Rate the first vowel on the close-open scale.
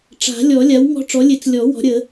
open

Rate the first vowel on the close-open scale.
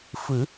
close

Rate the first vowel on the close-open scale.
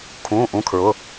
close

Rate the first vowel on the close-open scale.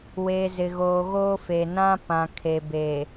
mid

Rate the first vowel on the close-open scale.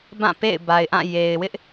open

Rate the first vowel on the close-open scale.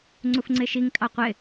close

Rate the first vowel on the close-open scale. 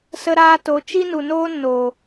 mid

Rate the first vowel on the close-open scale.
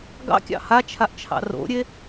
open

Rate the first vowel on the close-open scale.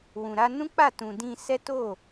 close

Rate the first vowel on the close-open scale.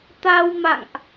open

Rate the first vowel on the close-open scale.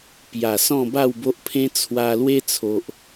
open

